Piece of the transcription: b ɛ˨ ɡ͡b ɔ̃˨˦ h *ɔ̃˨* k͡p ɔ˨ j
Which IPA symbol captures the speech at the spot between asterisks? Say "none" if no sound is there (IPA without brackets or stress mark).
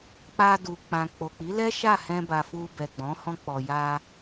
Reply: ɔ̃˧